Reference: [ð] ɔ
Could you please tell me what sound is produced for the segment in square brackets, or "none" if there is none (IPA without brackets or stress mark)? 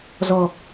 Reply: z